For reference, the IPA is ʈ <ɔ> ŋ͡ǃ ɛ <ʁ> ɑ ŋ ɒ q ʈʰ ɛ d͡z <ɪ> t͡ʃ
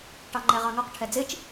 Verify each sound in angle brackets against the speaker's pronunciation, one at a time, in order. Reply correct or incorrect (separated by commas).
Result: incorrect, correct, correct